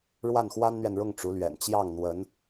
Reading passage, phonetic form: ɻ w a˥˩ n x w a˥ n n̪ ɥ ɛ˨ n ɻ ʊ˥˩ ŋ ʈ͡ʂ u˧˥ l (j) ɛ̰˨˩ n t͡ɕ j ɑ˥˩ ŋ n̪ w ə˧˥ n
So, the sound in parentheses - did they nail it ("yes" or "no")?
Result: no